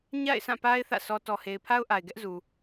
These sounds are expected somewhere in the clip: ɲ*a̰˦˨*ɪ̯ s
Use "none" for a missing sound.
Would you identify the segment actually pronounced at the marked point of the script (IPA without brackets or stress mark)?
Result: a̰˦˨